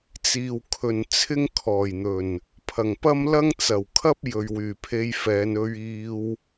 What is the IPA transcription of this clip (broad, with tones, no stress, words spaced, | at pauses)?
t͡siː˨wkʰɵ˨n t͡sʰɪ˥ŋkʰɔː˨˩jn̪ɵ˨˩n | pʰɐ˨˩ŋpɐ˥m lɐ˥ŋ t͡sɐ˨˩wkʰɐ˥p̚ jɵ˨ɥwyː˨˩pʰe˧jfɛː˨˧n ɵ˧ɥiː˧w